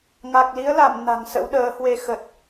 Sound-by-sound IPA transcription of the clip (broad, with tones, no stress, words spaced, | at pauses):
ŋa˨˩k̚li˨˦ə̯la˧˩m na̤˨˩ŋsə̰˧˥wɗəː˨˦hwe˧ xə˨˩t̚